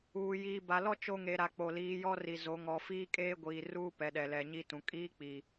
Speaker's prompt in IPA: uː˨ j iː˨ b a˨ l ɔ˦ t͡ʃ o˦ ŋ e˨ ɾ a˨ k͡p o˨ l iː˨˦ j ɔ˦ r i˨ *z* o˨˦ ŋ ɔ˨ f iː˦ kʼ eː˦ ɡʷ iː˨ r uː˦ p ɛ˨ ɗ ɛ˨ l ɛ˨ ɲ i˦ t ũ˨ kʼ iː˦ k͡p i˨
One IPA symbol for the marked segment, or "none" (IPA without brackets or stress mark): z